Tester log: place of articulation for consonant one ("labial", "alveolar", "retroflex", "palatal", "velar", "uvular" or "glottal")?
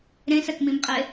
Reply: alveolar